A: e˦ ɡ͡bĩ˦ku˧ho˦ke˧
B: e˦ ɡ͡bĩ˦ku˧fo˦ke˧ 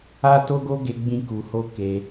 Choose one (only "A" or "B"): A